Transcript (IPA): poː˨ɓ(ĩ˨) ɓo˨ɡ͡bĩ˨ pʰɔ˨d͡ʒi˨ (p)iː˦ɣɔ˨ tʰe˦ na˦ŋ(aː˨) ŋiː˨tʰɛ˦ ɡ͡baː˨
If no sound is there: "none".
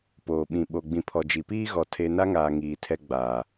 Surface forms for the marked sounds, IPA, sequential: ĩ˨, p, aː˨

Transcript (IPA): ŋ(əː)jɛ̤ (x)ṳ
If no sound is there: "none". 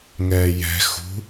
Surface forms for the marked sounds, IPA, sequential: ɛː, x

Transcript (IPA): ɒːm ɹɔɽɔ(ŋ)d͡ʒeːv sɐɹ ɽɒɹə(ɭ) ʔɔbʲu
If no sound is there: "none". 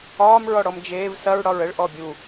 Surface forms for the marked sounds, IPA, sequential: m, ɭ

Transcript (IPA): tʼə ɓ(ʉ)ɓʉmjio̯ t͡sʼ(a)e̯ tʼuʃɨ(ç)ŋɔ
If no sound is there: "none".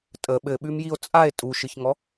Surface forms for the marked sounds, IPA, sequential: ɘ, a, ç

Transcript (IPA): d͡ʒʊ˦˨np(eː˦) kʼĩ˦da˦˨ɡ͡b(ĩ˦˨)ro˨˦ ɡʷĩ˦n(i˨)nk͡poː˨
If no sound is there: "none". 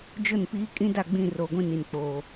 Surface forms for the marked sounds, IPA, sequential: iː˦, ĩ˦˨, i˨

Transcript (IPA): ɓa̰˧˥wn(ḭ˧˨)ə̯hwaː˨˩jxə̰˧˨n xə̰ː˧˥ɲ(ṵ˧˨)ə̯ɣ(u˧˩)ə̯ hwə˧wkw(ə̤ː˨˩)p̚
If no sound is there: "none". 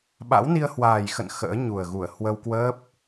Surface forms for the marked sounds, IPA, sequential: i˧, u˨˩, u˧˩, əː˦˥

